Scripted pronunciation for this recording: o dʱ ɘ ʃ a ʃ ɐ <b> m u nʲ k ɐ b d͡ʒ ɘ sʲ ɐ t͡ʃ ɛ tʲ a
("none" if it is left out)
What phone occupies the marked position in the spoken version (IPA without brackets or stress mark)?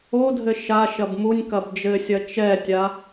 b